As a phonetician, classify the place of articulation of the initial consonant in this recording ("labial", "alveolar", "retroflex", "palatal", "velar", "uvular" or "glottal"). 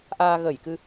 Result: glottal